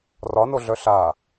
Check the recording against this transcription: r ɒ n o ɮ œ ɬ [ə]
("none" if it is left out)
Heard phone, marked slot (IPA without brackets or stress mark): a